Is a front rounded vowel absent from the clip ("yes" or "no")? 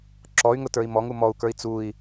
no